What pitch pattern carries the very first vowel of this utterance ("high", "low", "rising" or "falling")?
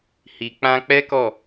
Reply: low